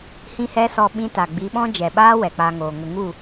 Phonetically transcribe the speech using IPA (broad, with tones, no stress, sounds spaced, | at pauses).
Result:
h ĩ˦ h ɛ˦ s ɔ˧ ɓ ĩ˦ t a˨ ɡ͡b i˨˦ ɓ ɔ̃˦ d͡ʒ ɛ˨ ɓ aː˦ w ɛ˨ k͡p a˧ ŋ oː˨ ŋ ə˧ ŋ u˦˨